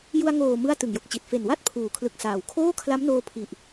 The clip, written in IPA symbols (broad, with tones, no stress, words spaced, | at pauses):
ju˧a̯ŋoː˨˩ mɯ˥˩a̯tɯ˨˩ŋjo˨˩k̚t͡ɕi˨˩t̚ fe˨˩nwa˥˩t̚ pʰuː˨˩kʰlɯ˨˩k̚saː˩˦w kʰoː˥˩kʰla˦˥mnoː˧ pʰi˨˩ʔ